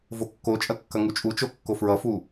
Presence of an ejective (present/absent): present